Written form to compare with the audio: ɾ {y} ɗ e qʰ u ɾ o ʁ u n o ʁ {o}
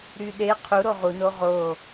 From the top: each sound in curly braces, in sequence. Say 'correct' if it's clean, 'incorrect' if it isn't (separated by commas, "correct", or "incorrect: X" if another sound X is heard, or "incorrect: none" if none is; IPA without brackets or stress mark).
correct, correct